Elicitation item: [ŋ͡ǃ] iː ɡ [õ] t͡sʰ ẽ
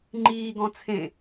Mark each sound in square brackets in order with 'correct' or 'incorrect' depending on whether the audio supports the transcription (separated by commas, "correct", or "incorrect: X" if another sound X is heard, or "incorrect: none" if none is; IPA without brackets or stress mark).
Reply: correct, incorrect: ɔ̃